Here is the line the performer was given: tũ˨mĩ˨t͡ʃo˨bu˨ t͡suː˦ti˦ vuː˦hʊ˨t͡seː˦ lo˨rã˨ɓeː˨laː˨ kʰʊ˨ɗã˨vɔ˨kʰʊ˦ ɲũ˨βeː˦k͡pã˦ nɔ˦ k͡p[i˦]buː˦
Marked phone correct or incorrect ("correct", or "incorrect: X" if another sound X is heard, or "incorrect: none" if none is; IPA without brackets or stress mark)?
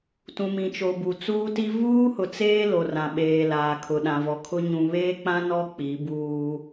incorrect: i˨˦